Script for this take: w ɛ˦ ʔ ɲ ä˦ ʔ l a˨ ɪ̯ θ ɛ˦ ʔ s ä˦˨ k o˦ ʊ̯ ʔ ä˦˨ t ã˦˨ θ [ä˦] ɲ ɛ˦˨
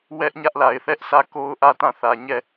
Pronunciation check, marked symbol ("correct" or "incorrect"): incorrect